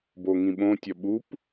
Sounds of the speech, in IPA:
b o ŋ ĩ ɓ õ tʲ ɒ ɓ u p

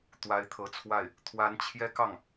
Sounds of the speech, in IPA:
t̪ w a˧˥ ɪ̯ t̪ʰ ɤ˧˥ t͡sʰ w a˥˩ ɪ̯ | t̪ʰ w a˧˥ n t͡ɕʰ j ɛ˥ k ɑ˥˩ ŋ

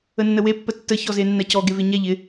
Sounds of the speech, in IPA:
ə nː ə w e pː ə tː ə ç ɔ z e nː a c ɔ ɡ e v e ɲ a ʎ ɪ

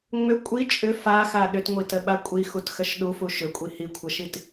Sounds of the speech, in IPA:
ŋ͡m ʏ kʷʼ i t͡ʃʼ ʏ f a x a ɗ ʏ t ŋʷ i t ə ɓ a kʷʼ i x u t x ə ʃ ɗ u f u ʃ ʏ kʷʼ i h i kʷʰ ə ʃ i t

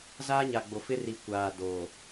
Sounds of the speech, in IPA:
z aː˦ ɲ a˨ ɡ͡b o˨ f ɪ˦ r i˨ kʷ aː˨ d oː˨

